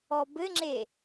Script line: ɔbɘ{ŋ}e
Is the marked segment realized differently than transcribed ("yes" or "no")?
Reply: yes